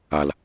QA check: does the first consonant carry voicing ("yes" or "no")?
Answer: yes